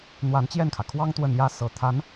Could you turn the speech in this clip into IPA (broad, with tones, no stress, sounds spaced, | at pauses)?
n̪ w a˧˥ n t͡ɕ j ɛ˥˩ n kʰ ä˩ kʰ w ɑ˥ ŋ t̪ w ə˥˩ n j ä˥ s ɤ˧˥ t̪ʰ a˧˥ n